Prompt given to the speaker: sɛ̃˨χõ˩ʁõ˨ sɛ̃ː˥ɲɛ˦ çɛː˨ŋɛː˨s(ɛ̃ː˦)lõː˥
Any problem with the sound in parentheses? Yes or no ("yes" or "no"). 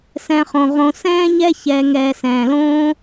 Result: yes